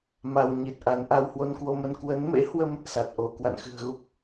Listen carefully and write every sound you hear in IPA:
m a˧ w ɲ i˨˩ t̚ ʔ a˨˦ n ʔ a˧ w h w o˧ n k w o˧ m ə˧ n k w ə˨˦ n m ḛ˧˥ h w ə˧ m | s a˨˩ t̚ ʔ o˧˩ k w a̰˧˨ n x ɨ̤˨˩ ə̯ ɣ u˦˥ p̚

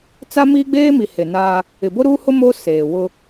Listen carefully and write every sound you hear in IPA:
t͡s a˦ m iː˦ ɡ͡b eː˦ m i˨ h e˨ n aː˦ | ɪ˨ b o˦ ɾ uː˦ h ʊ˦ m o˦ s eː˨ w ʊ˦

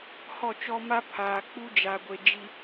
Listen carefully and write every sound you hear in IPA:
h ɔ˦˨ t͡ʃ ɔ˦ m a˦ pʰ aː˨ k͡p u˦ d͡ʒ a˨ ɡʷ e˨ d͡ʒ i˨

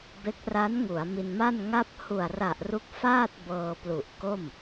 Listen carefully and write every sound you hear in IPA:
b e˦˥ k̚ r a˦˥ n ŋ u˩˦ a̯ m i˧ n m a˥˩ n ŋ a˥˩ p̚ h u˨˩ a̯ r a˨˩ ʔ r u˦˥ k̚ f aː˥˩ t̚ b ɤː˧ p l u˨˩ ʔ k o˥˩ m

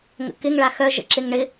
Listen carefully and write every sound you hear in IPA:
ŋ ə̰ k ɪ ŋ ɭ a x œ ʒ ə̰ ǁ ɪ ŋ ɳ ɪ

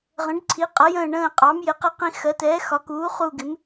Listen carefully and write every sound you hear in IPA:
ʁ ə̃˩˥ ɖ ǀʰ i˩˥ qʼ ʌ˩˥ j ə̃ː˦˨ ɳ ə̃ː˦˨ qʼ ɑ˩˥ m j ɪ˩˥ q ʌ˦˨ q ĩ˦˨ x ɜ˩˥ t ɛː˩˥ x ɒ˩˥ k uː˩˥ χ u˦˨ ɡ ɪ˩˥ m

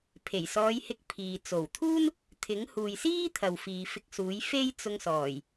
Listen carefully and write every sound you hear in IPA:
pʰ e˨˩ j s ɔː˨˧ j h ɪ˨˥ k̚ pʰ iː˨ t͡s o˨˩ w t̪ʰ uː˥ n | t̪ʰ ɪ˨˥ ŋ h uː˨ j s iː˥ t̪ʰ ɐ˨ w f iː˨ f ɪ˧ k̚ s uː˨˥ j f e˥ j t͡s ʊ˧ ŋ s ɔː˨˩ j

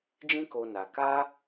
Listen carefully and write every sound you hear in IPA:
d͡ʒ ĩ˦ k o˧ n a˧ k a˦

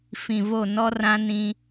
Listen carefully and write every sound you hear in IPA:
f ĩ˨ v o˦˨ n ɔ˦ r ã˦ n ĩ˦

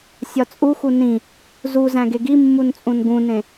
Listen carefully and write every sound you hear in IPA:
sʲ ɒ t͡sʼ u x u n ĩ | z u z æ̃ ɡ e ɡ i mː u n t͡sʼ ũ n ɡ ũ n ẽ

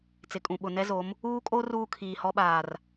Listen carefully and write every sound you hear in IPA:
t͡s ɪ˨ kʼ ũ˨ ɓ ʊ˨ n ɛ˦ z o˨˦ m | uː˦ kʼ o˦ r uː˦ kʰ iː˨ h ɔ˦ ɓ aː˨ r

